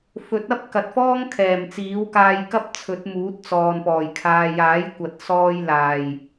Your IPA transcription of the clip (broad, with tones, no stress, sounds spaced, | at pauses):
f ɵ˨˥ t̚ ɐ˥ p̚ k ɐ˨ t̚ f ɔː˥ ŋ kʰ ɛː˨˩ m t͡s iː˨˥ w k aː˧ j k ɐ˥ p̚ t͡sʰ ɵ˨˥ t̚ m uː˨˥ t̚ t͡s ɔː˨ n p ɔː˨˩ j kʰ aː˨ j aː˨˥ j kʷ ɐ˨ t̚ s ɔː˧ j l aː˨˩ j